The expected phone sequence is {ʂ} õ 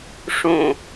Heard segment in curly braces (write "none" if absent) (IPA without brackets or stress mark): ʂ